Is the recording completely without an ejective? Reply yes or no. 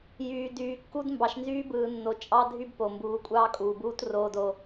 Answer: no